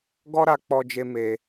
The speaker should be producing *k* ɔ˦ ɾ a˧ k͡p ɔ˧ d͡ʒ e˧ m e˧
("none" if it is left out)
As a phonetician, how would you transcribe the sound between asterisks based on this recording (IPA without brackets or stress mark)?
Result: ɡ